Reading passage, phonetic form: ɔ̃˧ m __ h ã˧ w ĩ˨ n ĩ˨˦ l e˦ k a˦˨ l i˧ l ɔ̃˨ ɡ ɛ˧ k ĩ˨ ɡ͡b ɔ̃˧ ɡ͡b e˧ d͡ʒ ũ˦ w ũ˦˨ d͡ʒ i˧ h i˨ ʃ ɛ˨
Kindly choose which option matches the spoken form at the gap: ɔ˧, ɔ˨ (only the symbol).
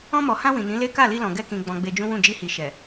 ɔ˨